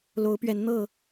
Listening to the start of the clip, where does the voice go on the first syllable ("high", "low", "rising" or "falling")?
rising